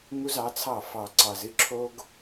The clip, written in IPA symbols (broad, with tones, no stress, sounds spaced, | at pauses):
ŋ u˦ z ɑ˨˦ t͡sʰ ɑ˦˨ f ɑ˨ ǀ ɑ˨ z ɨ˦ ǁʰ o˦ ɡ